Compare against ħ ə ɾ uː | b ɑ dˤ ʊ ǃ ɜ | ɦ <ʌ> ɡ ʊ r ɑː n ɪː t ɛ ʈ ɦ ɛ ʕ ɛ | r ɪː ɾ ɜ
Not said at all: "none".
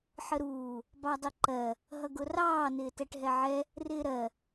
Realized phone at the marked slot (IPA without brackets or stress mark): ʌ